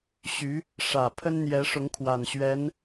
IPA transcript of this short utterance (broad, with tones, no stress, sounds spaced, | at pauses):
ɕ y˧˥ | ʂ ä˨˩ pʰ ə˥ n n̪ j ɛ˧˥ ʂ ʊ˧˥ ŋ kʰ w a˨˩ n ɕ ɥ ɛ˧˥ n